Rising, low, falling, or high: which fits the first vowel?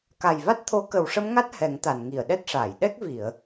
low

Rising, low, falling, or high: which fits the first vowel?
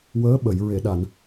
rising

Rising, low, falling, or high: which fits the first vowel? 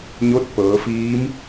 rising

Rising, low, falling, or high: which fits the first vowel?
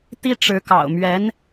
high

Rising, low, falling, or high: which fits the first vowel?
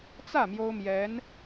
falling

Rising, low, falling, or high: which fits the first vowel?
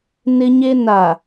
high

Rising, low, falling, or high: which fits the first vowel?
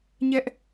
high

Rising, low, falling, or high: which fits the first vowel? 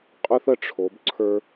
high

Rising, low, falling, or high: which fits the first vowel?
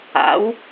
rising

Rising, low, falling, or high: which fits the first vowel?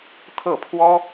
falling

